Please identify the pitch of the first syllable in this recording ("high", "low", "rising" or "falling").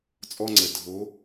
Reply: high